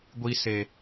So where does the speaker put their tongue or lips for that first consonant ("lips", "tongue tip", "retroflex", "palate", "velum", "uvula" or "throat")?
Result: velum